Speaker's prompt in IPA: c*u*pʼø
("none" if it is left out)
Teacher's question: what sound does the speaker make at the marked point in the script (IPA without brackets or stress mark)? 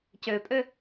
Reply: ø